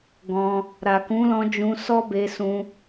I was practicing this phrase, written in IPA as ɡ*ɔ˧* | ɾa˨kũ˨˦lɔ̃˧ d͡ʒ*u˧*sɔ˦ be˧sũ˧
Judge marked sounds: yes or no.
no, no

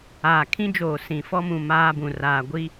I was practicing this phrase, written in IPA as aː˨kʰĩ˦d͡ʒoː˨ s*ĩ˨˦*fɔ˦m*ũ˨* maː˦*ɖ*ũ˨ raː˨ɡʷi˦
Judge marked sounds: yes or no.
no, yes, no

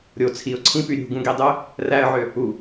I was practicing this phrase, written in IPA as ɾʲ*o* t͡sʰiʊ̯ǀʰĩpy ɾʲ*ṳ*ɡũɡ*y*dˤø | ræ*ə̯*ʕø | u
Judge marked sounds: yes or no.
yes, yes, no, yes

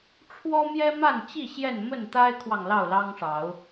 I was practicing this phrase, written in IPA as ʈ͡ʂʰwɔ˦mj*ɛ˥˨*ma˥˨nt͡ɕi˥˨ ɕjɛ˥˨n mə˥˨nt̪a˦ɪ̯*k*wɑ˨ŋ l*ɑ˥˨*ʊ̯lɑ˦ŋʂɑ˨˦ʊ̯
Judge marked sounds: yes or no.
no, no, yes

